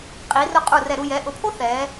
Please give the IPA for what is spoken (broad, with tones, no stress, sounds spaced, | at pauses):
qʼ i˩˧ r ʊ˧ qʼ u˧˩ r ɛ˧˩ ɾ u˥˧ j ɛ˩˧ ʔ ʊ˩˧ pʰ o˥ θ ɛː˩˧